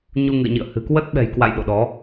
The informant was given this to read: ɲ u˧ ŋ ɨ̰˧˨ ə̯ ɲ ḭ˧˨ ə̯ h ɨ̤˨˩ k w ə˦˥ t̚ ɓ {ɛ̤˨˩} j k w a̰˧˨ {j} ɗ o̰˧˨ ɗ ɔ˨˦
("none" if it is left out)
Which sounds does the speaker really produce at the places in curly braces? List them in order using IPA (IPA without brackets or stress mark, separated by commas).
ɛ̤˨˩, j